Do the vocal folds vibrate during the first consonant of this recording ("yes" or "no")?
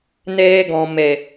yes